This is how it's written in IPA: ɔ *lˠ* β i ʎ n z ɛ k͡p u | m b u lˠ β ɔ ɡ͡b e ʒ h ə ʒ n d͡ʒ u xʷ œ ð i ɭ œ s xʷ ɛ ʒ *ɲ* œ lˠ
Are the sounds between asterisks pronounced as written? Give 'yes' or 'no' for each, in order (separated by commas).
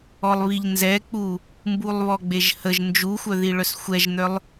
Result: yes, no